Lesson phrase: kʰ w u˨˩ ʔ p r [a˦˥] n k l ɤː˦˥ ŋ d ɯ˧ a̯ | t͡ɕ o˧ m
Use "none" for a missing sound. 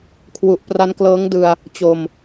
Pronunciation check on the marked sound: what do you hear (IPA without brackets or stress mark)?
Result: a˦˥